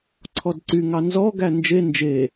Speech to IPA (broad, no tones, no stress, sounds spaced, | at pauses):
ǀʰ ɔ d ǀ y ŋ ɑ n z ɔ ɡ æ n d͡ʒ e n d͡ʒ e